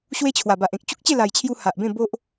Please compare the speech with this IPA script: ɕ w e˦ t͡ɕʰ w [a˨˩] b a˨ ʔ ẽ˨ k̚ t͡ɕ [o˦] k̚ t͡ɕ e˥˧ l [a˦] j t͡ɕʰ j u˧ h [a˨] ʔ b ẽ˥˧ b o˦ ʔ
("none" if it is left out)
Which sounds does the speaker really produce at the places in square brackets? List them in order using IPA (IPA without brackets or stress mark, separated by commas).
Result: a˨˩, u˦, a˨˩, a˨